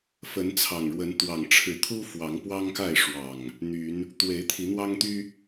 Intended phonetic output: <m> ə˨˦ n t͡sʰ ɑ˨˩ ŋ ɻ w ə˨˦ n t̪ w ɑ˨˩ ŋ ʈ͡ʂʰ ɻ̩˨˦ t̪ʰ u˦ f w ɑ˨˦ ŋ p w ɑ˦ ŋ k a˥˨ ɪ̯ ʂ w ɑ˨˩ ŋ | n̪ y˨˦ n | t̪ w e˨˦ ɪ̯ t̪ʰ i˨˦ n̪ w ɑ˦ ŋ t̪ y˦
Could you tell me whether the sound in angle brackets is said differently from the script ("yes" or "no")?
yes